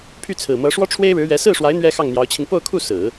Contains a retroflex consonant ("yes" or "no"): yes